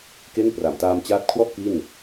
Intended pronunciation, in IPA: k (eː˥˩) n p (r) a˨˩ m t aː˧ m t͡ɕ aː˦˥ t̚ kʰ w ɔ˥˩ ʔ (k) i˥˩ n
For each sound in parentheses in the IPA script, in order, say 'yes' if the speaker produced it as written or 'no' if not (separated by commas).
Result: no, yes, yes